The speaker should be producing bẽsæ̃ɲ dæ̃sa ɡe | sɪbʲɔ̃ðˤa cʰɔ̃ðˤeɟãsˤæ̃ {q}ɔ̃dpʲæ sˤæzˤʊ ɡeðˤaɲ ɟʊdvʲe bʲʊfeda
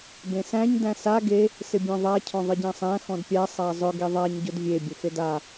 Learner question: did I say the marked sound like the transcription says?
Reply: no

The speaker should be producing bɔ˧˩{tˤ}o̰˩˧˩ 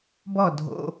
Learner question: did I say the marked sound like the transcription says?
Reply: no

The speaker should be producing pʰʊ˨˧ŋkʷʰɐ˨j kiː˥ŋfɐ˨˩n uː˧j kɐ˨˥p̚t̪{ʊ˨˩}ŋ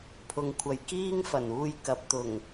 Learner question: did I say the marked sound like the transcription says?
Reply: yes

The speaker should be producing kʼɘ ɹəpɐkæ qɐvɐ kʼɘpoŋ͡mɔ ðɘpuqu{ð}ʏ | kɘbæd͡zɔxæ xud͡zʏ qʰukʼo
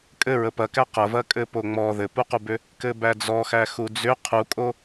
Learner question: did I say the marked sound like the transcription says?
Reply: no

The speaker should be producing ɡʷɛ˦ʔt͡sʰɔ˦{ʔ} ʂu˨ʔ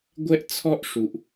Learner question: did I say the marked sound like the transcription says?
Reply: yes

